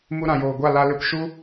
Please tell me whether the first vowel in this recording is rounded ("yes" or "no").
yes